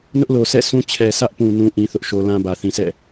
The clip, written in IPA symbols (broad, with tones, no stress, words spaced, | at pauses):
nʊ˦ʔlo˨sʰɛ̰˦˨ sũ˦ t͡ɕʰɛ˨sʰä˦ʔpũ˨ nũ˦ ʔĩ˦θʊ˦ʔʃo˦ lã˦bä˨ θĩ˨sʰɛ̰˦˨